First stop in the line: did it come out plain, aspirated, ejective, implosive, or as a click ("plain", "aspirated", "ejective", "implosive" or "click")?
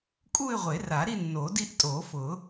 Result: ejective